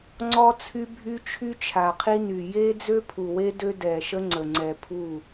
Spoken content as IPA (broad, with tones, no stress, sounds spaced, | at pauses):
ŋ͡ǀ ɔ˦ t͡sʰ y˦ bʱ y˦ t͡ʃʰ y˦ t͡ʃʰ a˨ qʰ i˦ n y˨ j e˦ d͡z ø˦ pʰ u˨ w e˦ d ø˦ d ɛ˨ ʃ ə˦ ŋ͡ǀ ə˨ ŋ͡ǀ ɛ˨ pʰ u˦˨